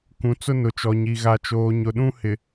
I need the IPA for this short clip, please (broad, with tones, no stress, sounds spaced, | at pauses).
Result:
k ũ˨ t͡s ʊ˦ n ʊ˨ t͡ʃ ɔ˨ ɲ i˨ ɣ a˨ t͡ʃ oː˨ ɲ ʊ˨ ɗ ũ˦ h ɪ˨